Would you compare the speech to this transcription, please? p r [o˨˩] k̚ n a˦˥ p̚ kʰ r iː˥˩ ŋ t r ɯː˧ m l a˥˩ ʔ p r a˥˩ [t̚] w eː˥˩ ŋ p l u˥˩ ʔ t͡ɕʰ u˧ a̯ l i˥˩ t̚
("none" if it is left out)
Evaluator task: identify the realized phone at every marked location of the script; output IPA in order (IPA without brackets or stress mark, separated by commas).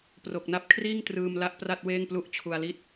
o˨˩, t̚